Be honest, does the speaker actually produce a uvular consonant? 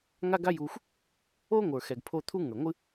no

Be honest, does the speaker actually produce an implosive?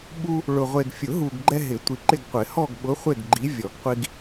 yes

